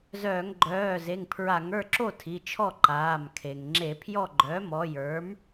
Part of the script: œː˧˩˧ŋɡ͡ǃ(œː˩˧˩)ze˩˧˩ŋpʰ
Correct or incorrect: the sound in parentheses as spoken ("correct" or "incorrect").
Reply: correct